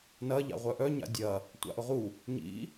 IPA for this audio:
n ɐ ʎ a̰ ʁʷ œ ʔ œ ɲ a̰ dʲ ɐ | tʷ a̰ ʔ ʊ ʁ u | ɲ ḭ

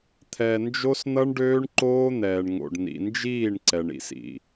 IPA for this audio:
t̪ʰ ɛ˨ n d͡ʒ o˦ s n̪ ʌ˦ ɳ ɖ øː˦ ɳ ǃ oː˦ n̪ ɛː˨ ɳ ŋ o̰˨ ɖ n̪ ḭ˨ n d͡ʒ iː˦˨ ɳ ǀ ɛ˨ ɳ ḭ˦ s ḭ˨

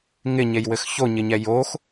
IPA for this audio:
ŋ ɪ ɲ e j w ɘ x ç o ɲ ɪ ɲ ɛ j o x

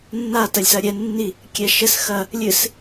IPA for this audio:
nː a t ɐ lʲ s ɐ ɾʲ ɛ nː i | kʲ ɛ ʃ ɘ s x ɐ | lʲ ɨ s

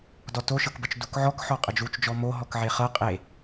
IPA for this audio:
d ɔ t o ʃ ɤ k b ə t͡ʃ d u k ʕ ɔ k ħ ɔ qʼ ə d͡ʒ u t͡ʃ d͡ʒ ɔ m o ɦ ɔ k ʕ e χ ɤ qʼ e

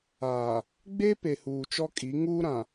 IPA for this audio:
aː˨ | ɡ͡b e˦ p e˨ h uː˨ t͡ʃ ɔ˦ kʼ i˨˦ ŋ uː˦ ɾ ã˨

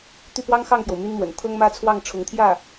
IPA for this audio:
t̪ y˥˩ p w ɑ˥ ŋ x ɑ˥˩ ŋ p j o˩ ʊ̯ m y˥ n m w ə̰˨˩ n t̪ʰ ɤ˥ ŋ m ä˥ t͡sʰ w ɑ˥˩ ŋ ʈ͡ʂʰ ʊ˧˥ ŋ t̪ʰ j ä˥˩

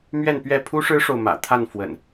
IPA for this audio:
m ɥ ɛ˥˨ n p ɥ ɛ˥˨ pʰ u˦ ʂ ɻ̩˦ ʂ o˨ ʊ̯ m ä̰˨˩ t̪ʰ a˥˨ n f w ə̰˨˩ n

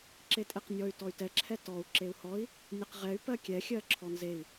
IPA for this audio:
ǁ e tʼ e q nʲ ɔ y̯ t ɔ y̯ t ɛ ǁʰ ɛ t ɔ u̯ ǁ e u̯ h ɔ i̯ | nʲ e q ʁ ɛ y̯ p ɜ kʲ ɛ xʲ ɜ ǁʰ ɔ n z e i̯

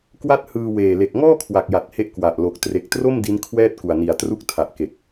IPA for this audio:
k w a˥˩ t̚ h ɯː˧ w eː˨˩ l e˨˩ k̚ ŋ ɔː˥˩ kʰ w a˨˩ k̚ j a˨˩ t̚ h e˦˥ ʔ k w a˨˩ ʔ l o˨˩ k̚ t r e˨˩ k̚ t r o˥˩ m d i˦˥ n kʰ w ɛː˥˩ t̚ k u˨˩ a̯ n i˨˩ a̯ t r u˦˥ k̚ tʰ a˨˩ ʔ k e˨˩ k̚

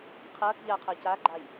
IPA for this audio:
qʰ ɐː k ʎ a qʰ ɐː c a ɡ͡ǃ a j

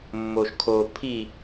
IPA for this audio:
mː o ʃ kʰ o pʰ i

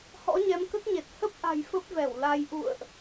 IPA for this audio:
h ɔ̰˧˥ ɲ ɛ˨˦ m k ə˦˥ t̚ ɲ e˨˩ t̚ h ə˦˥ p̚ ʔ a̤˨˩ j f ə˦˥ p̚ v ɛ˧˩ w l a˧ j ʔ ṵ˧˨ ə̯ ʔ

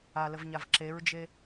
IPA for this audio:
a l ə v ɲ a v ǁ e ɹ d͡ʒ e

